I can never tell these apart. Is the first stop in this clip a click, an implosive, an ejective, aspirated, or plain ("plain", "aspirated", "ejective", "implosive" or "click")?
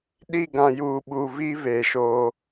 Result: implosive